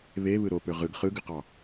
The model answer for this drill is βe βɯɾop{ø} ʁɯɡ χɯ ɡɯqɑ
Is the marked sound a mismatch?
no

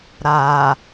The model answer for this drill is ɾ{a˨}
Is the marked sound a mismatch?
no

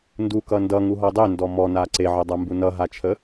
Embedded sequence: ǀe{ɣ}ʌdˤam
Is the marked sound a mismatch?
yes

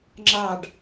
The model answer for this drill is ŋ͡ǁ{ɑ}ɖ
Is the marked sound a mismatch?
no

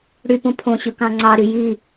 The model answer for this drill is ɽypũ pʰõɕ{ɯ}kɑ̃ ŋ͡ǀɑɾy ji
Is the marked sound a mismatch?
no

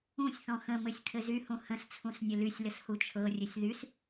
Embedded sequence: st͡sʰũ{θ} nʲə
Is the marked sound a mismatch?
yes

